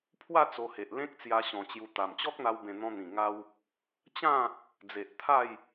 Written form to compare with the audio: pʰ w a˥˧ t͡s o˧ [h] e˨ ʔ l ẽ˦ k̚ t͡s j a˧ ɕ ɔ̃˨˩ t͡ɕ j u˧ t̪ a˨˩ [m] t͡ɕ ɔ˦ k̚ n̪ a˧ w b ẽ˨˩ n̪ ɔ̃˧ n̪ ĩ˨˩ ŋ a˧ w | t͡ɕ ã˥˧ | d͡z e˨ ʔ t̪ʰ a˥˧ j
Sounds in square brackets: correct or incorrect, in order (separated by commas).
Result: correct, correct